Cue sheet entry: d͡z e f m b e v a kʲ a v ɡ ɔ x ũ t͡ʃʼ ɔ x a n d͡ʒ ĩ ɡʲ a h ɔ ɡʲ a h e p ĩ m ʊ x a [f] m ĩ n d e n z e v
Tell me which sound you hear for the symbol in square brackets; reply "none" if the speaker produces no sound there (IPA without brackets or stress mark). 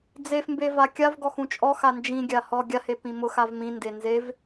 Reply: v